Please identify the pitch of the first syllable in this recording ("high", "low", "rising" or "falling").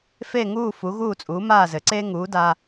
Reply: falling